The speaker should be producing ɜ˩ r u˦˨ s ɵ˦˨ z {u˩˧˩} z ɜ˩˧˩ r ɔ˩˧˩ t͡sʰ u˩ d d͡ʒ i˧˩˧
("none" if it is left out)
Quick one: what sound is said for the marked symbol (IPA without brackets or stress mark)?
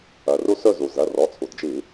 u˩